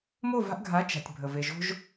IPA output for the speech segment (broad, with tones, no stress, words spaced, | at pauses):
mo˦˨va̤˧ʔɡʱa˨˦ t͡ʃa̤˨tʲ bʱə˨ ve˨ʒo̤˦ʒ